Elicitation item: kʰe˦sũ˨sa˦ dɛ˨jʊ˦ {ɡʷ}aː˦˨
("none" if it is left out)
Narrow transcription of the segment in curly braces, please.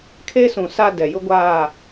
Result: ɡʷ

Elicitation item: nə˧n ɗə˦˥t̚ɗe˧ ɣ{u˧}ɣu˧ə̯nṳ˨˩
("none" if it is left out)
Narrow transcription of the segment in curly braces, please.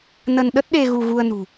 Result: u˧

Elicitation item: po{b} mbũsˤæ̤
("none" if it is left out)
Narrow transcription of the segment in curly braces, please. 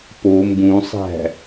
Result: none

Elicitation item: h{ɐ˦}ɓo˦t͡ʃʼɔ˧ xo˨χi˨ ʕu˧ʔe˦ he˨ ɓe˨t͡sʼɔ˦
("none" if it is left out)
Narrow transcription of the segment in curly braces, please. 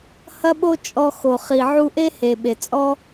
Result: ɐ˦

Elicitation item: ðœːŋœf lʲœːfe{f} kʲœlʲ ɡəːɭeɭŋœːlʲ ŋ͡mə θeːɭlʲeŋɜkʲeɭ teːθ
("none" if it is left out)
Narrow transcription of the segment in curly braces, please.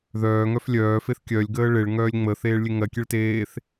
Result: θ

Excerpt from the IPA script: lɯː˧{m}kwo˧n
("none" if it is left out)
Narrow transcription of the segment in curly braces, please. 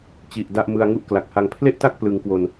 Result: ŋ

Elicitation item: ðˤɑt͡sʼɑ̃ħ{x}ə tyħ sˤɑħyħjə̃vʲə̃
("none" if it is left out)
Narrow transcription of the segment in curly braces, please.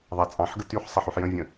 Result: ɡ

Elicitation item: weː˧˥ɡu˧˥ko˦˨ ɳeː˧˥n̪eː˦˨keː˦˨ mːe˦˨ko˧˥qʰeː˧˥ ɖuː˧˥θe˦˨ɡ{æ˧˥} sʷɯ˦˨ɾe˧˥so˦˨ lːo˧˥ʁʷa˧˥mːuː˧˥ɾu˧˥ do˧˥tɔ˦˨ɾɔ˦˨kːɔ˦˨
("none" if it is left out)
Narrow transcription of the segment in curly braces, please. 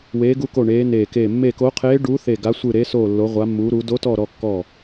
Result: a˧˥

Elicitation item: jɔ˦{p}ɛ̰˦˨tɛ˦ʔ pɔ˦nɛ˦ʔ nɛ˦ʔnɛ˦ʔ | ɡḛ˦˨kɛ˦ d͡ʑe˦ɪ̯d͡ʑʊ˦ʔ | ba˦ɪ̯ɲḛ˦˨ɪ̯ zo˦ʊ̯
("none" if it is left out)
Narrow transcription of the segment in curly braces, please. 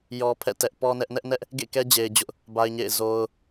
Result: pʰ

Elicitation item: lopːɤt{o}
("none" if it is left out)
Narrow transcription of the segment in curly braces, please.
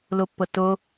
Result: o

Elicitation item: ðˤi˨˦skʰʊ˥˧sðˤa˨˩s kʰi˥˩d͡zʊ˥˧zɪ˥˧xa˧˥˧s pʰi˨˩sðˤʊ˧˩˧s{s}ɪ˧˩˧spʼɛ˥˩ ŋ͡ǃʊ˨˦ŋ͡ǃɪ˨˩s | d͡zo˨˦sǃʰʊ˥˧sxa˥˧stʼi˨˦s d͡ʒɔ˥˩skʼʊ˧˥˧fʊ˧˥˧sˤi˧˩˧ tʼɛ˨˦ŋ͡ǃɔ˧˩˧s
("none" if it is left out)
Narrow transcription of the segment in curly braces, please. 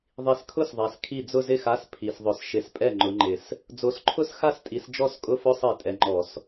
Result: ʃ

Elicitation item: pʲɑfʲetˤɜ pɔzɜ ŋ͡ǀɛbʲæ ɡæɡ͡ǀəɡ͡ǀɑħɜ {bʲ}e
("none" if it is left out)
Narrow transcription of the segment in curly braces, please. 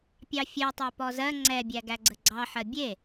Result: bʲ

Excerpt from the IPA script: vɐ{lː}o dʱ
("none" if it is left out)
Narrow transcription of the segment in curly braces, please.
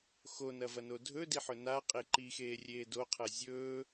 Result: n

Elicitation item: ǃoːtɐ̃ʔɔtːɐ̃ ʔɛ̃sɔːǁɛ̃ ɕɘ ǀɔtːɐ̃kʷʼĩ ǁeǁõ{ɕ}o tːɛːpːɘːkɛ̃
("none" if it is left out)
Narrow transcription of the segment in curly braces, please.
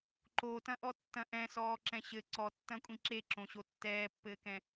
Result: ɕ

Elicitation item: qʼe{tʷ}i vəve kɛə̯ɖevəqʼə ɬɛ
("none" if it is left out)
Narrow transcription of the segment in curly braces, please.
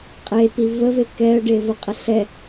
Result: t̪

